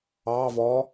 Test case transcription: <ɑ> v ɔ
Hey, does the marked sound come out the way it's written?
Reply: yes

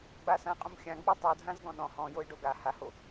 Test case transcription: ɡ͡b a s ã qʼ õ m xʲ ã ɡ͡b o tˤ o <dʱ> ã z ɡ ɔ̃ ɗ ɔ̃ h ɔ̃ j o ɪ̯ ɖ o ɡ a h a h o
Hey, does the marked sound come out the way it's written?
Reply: yes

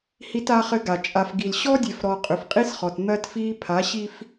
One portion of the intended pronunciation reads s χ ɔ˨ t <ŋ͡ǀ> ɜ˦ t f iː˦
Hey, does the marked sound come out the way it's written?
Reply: no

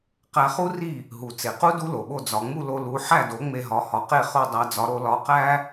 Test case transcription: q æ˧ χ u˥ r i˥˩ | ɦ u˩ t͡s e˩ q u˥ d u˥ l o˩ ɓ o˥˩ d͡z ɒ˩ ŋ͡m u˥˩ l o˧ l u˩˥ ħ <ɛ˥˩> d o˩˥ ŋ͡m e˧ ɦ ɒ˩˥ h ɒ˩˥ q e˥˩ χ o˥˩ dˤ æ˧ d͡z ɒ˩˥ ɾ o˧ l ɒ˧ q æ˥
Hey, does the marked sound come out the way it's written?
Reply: no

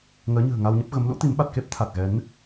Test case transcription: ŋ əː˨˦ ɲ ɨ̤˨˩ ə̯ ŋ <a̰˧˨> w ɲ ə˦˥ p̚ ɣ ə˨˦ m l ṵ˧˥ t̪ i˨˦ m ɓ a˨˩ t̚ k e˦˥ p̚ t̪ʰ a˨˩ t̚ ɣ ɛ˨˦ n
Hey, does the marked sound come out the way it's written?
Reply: no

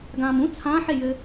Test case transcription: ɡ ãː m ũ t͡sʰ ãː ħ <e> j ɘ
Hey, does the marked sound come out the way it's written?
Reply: yes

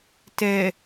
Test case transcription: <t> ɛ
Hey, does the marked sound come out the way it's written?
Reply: yes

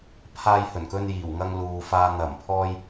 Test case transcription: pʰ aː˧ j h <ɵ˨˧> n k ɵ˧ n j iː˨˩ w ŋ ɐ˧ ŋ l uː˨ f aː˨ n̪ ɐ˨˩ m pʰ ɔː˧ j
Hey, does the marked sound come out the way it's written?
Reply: no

